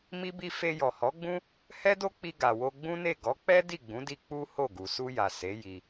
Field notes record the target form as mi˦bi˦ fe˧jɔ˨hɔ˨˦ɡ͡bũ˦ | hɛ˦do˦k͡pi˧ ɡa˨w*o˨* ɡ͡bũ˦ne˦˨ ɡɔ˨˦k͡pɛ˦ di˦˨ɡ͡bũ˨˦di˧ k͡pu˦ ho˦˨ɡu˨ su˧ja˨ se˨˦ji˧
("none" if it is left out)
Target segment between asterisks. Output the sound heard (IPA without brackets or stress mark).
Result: o˧